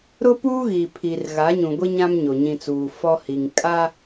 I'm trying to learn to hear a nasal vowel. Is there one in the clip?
yes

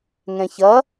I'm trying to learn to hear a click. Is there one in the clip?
no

